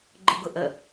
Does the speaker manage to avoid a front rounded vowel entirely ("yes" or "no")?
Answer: yes